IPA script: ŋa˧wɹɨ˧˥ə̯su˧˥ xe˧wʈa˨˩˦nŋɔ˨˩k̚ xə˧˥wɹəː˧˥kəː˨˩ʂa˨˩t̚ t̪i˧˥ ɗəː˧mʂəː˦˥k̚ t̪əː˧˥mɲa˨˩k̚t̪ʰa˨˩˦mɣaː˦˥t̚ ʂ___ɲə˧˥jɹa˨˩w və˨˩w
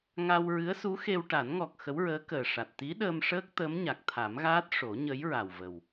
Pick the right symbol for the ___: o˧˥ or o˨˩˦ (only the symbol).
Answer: o˨˩˦